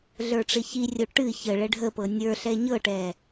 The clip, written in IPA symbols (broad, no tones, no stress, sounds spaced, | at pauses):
ɮ ə˞ ʈ͡ʂ ɪ ç i rʲ o ʈ ɨ ç ə ɭ ɛ ɖʱ ə p ɤ nʲ ə˞ ɬ ɛ ɲ ɤ ʈ ɛ